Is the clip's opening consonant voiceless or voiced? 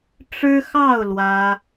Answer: voiceless